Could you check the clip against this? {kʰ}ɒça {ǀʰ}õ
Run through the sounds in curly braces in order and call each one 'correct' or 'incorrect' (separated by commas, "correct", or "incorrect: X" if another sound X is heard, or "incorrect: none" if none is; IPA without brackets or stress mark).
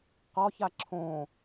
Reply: incorrect: q, incorrect: ǁʰ